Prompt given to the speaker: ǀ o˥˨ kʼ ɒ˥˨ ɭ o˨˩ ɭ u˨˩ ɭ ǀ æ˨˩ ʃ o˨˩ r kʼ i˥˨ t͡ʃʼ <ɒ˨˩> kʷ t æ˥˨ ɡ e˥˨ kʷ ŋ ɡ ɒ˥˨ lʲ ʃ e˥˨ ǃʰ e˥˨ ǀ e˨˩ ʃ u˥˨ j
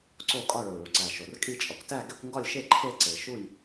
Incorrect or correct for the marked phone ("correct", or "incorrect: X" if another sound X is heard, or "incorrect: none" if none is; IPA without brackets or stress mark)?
correct